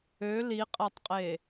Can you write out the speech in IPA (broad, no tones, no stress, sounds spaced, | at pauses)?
ø l i qʼ æ tˤ qʼ e